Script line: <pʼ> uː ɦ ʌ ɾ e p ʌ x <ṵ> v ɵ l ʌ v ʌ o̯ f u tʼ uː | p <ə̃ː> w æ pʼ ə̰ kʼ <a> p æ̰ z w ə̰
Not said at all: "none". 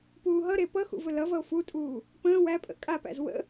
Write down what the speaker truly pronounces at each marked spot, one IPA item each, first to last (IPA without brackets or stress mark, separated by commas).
p, ṵ, ə̃ː, a